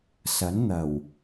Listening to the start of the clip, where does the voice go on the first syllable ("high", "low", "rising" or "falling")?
rising